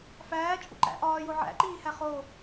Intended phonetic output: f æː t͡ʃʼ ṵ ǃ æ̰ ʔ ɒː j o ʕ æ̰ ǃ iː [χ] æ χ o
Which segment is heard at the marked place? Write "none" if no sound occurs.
h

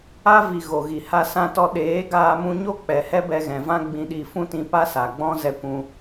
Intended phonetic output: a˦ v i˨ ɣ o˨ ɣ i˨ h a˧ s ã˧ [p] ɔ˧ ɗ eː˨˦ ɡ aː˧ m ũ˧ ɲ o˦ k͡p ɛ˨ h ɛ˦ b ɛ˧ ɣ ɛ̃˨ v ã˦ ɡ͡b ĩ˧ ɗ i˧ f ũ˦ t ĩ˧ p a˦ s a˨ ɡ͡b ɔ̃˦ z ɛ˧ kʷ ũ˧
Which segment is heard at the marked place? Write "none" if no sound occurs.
t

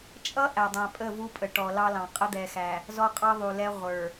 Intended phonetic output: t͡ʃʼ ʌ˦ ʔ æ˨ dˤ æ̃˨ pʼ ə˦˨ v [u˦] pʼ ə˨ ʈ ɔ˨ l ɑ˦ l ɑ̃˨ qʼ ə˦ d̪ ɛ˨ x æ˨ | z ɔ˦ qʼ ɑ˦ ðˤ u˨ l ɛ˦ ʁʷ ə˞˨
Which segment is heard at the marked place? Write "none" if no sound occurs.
u˦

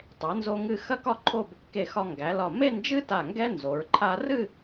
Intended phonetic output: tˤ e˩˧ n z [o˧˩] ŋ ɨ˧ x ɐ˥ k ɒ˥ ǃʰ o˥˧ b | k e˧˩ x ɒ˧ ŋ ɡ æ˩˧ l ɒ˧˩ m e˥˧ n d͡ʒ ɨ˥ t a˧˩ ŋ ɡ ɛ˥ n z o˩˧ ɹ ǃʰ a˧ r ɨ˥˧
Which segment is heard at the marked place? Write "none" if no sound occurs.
o˧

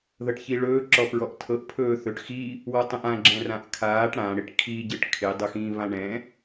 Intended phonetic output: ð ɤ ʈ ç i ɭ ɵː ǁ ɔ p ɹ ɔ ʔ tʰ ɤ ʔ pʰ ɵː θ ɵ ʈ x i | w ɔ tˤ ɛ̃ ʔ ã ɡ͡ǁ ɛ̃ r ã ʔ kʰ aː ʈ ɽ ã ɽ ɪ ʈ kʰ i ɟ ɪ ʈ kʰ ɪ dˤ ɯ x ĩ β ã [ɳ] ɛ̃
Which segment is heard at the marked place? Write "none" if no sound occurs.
ɳ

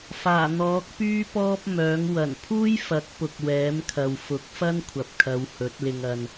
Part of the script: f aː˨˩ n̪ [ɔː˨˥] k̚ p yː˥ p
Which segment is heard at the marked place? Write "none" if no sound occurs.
ɔː˨˥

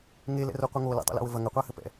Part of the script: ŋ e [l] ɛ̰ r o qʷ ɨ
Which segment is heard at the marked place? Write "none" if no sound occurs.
l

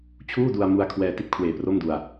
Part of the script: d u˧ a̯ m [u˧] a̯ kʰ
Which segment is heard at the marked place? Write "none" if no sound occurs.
u˧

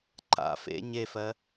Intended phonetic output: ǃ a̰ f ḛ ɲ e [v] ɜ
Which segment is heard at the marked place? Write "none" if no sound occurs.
f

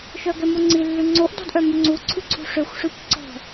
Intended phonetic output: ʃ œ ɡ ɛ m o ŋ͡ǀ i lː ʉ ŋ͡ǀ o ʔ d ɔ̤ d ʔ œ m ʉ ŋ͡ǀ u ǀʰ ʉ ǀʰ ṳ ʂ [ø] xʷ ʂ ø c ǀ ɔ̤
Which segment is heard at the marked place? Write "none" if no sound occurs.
ø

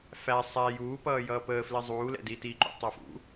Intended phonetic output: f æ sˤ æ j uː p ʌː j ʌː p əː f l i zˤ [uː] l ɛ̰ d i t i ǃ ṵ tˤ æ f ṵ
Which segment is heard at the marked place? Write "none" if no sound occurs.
uː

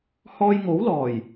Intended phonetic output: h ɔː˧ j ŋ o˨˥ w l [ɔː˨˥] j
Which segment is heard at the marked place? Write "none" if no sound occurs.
ɔː˨˩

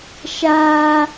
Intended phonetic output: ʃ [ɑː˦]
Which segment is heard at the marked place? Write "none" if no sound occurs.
aː˦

